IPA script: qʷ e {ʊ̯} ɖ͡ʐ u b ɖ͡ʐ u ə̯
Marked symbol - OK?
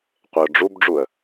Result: yes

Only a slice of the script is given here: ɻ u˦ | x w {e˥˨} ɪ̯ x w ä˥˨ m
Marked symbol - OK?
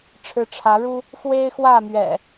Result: no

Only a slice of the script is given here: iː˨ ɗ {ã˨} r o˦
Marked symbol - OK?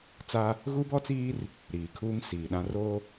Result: no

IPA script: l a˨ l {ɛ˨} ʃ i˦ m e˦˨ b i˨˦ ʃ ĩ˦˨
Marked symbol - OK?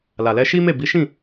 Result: no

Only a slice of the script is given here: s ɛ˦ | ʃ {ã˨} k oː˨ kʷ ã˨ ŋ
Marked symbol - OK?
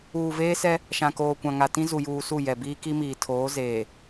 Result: yes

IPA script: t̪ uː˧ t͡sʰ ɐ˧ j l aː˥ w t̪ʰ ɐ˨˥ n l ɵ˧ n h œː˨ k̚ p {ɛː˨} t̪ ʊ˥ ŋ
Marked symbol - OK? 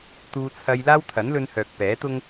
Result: no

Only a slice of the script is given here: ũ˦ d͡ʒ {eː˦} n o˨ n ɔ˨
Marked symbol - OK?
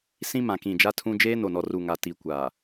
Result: yes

